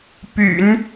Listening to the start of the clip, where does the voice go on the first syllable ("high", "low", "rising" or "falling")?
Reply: low